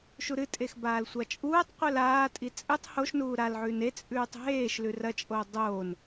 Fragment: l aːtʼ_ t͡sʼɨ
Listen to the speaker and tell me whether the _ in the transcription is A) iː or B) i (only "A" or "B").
B